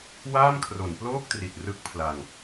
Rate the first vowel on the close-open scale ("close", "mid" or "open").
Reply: open